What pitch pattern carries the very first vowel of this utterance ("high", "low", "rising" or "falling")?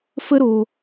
high